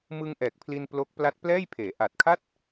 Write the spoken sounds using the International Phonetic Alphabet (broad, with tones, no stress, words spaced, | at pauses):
mɯ˧ŋ ʔɛː˨˩k̚pʰli˧n plo˦˥k̚ pla˦˥t̚plɛː˥˩jpʰeː˩˦ ʔa˨˩t̚kʰa˥˩t̚